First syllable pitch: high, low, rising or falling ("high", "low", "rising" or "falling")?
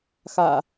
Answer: low